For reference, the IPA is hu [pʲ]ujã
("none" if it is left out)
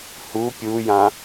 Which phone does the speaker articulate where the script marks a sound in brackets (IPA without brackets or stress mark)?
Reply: pʲ